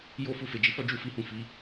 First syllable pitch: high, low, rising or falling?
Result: high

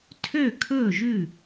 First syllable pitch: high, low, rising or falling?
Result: falling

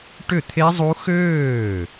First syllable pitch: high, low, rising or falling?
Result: falling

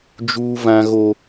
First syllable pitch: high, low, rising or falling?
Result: high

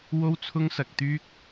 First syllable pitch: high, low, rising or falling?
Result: high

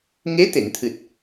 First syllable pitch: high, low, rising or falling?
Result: rising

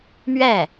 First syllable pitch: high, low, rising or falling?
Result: falling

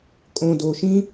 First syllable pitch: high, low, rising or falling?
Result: low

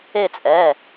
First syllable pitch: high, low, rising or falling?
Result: falling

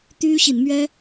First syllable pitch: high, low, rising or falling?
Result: high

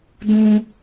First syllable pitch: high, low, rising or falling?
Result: high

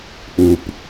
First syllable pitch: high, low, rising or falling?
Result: low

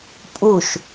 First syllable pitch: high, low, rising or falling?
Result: falling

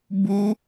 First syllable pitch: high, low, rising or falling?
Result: high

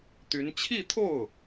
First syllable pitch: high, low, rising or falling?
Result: rising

